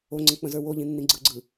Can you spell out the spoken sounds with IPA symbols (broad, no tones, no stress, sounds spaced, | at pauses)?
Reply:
o ŋ͡ǀ ə̃ k͡p ə̃ z ə˞ w o ʎ ĩ nː ĩ ɡ͡ǀ ɯ ɡ͡ǀ ɯ